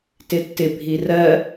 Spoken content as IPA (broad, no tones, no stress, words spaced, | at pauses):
tɪtːɪ bʱirɜ